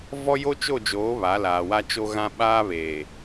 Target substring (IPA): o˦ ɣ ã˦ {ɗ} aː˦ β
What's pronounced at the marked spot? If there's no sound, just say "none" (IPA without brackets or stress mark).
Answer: ɓ